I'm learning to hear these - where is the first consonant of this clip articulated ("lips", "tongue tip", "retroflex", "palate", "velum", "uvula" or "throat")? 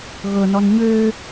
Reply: velum